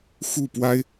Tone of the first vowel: falling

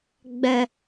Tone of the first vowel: high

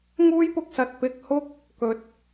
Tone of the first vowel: high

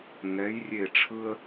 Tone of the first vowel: rising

